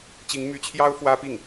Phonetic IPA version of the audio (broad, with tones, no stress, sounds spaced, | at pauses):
t͡ɕ i˧˥ ŋ m y˧˥ t͡ɕʰ j ɑ˥ ʊ̯ f w ä˥ p i˥˩ ŋ